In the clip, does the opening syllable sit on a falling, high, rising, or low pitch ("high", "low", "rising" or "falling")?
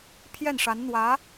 falling